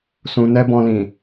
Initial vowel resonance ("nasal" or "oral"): nasal